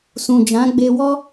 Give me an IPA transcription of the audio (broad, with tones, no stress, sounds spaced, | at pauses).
s ũ˨ d͡ʒ ã˨˦ ɡ͡b e˧ w ɔ˦